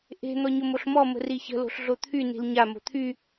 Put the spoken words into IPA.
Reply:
ʔ e̤ n̪ ɔ ɲ o m o ɬ m ɔ m ə̤ r i ç ə̤ l o̤ ɬ ɮ o t̪ʰ y n i̤ l ɲ a m o̤ t̪ʰ y

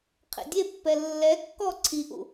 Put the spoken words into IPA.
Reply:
qʰ ḛ dʲ e pː ɛ lː ɛ kː ɔ ǀʰ i ʔ ṵ

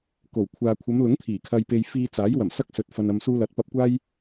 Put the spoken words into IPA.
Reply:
k o˨˩ w kʷʰ aː˨ kʷʰ ɐ˨˧ m l ʊ˨˥ ŋ t̪ʰ iː˨˩ kʰ ɐ˧ j p e˧ j f iː˧ t͡s aː˨˥ j w ɐ˨˩ m s ɐ˥ k̚ s ɵ˨ t̚ f ɐ˧ n ɐ˧ m s uː˥ l ɐ˨˥ t̚ p ɐ˧ p̚ kʷ aː˥ j

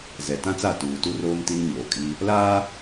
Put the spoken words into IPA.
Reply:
z ɛ˨ t ã˦ t͡s a˦˨ t uː˨ t u˦ r oː˦ m t i˦ n ɲ oː˨ kʼ i˦ | l aː˦

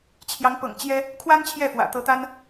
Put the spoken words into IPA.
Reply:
t͡ɕʰ j ɑ˨˦ ŋ p ɤ̰˨˩ ŋ t͡ɕ j ɛ˦ | kʰ w a˦ n t͡ɕʰ j ɛ˥˨ f w ä̰˨˩ t̪ ɤ˨˦ t̪ a˦ n

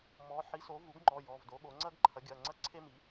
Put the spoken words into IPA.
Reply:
m ɔ˩˥ ħ i˩˥ s o˩˥ v u˩˥ ɡ ŋ͡ǃ ɔ˩˧˩ j ɔ˩˧˩ v d o˩˥ ɠ o˩˥ ŋ͡ǀ ɐ˥ ɡ ǃʰ ɐ˩˥ ɡʲ ɐ˩˧˩ ŋ͡ǀ ɐ˥ ǀʰ e˥ m i˩˥

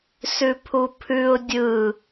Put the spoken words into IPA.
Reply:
s ʉ pʰ u pʰ ʉ ʊ̯ dʲ ɯ

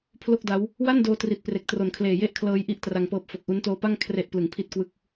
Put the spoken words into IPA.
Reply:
pʰ l o˥˩ k̚ d a˦˥ w | w a˥˩ n d oː˧ t r i˨˩ t̚ p r e˨˩ k̚ t r o˨˩ n kʰ l eː˨˩ j e˥˩ ʔ kʰ l ɤː˦˥ j ʔ i˦˥ ʔ t r a˧ ŋ p ɤː˦˥ p̚ f o˨˩ k̚ ʔ u˦˥ n t oː˦˥ p a˥˩ ŋ kʰ r e˥˩ ʔ p l ɯ˨˩ ŋ pʰ i˥˩ t̚ k w ɯ˥˩ k̚

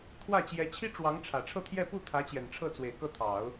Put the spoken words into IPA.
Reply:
t̪ʰ w ä˥˩ t͡ɕ j ɛ˧˥ t͡ɕʰ i˥ ʈ͡ʂ w ɑ˧˥ ŋ ʈ͡ʂʰ ä˨˩ ʈ͡ʂʰ ɤ˥˧ t̪ʰ j ɛ˥˧ p u˥˩ t̪ʰ ä˧˥ t͡ɕ j ɛ˨˩ n ʈ͡ʂʰ ɤ˥˩ t͡s w e˨˩ ɪ̯ k ɤ˥˩ t̪ʰ ɑ˨˩˦ ʊ̯

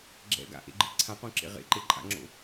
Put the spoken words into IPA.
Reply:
ɡ͡ǁ ɛ̰ ɡ a̰ ʔ ḛ ɡ͡ǃ ɨ ǀʰ ã q õ ǁ ḛ ʁ ḛ ǃ e ǃʼ a̰ ŋ͡ǁ o̰

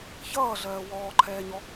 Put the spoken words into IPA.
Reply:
ç ʌː ɮ ɜː w ɔː ǃʰ ɛː ɲ ɔ

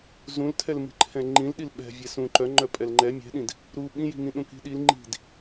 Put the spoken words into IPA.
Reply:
z ũ l tʰ ɛ l m i̤ ǃʰ ɛ̃ ŋ͡ǃ ĩ l ɗ i l ɓ ɛ̤ vʲ ɛ s ũ ǃ œ ŋ͡ǃ œ pʼ ɛ l ŋ͡ǃ ɛ mʲ ɛ̤ ɗ ĩ d | ɾ u ɓ ĩ j i̤ ŋ ĩ ɗ ũ k i̤ ɗ i l ŋ͡ǃ i̤ d

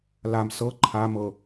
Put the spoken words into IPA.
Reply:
l a m s ɤ ǃʰ a m ɤ

